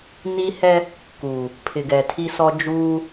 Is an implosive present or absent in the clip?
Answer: absent